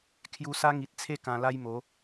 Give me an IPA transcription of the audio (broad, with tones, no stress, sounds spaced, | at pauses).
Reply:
kʰ j u˧ s a˦ ŋ i˨ t̚ t͡sʰ e˥˧ k ã˧ l a˦ j m o˨˦